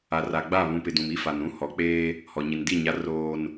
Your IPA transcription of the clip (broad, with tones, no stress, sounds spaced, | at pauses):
a˨ r a˨ ɡ͡b a˦˨ β ũ˨ p ɪ˨ d ũ˨ m i˦ f a˨ n ũ˦ h ɔ˨˦ k͡p eː˦ | h ɔ˨ ɲ i˨ n d i˦˨ ɲ a˨˦ r oː˨ n